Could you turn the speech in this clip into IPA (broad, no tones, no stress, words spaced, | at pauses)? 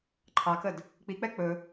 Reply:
ǃʰɑkəd | k͡pik͡pɛ k͡pɵ